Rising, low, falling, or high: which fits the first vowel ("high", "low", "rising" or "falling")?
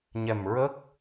low